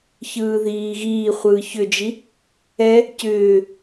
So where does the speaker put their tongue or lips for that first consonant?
palate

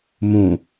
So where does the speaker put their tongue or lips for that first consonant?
lips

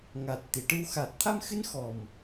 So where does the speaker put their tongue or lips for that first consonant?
velum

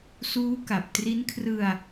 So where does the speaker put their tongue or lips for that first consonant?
tongue tip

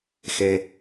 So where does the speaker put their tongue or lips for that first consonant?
velum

